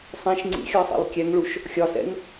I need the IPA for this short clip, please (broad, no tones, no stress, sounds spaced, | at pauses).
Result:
sˤ ĩ ʃ ŋ͡ǀ ḭ xʲ ɒ sˤ ḭ lˠ kʲ ɛ ŋ ɭ u ʃ | xʲ ɒ s ɛ̰ ŋ